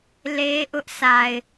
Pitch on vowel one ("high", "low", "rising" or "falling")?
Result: high